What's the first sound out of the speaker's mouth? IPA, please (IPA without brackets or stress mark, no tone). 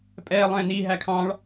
pʼ